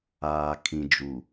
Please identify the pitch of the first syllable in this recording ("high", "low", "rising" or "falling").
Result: low